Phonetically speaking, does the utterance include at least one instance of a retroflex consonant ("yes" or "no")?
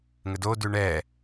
yes